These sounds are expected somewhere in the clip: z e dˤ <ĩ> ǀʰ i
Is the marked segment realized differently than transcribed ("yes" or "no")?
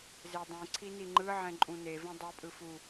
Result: no